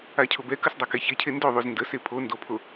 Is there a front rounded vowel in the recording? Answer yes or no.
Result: no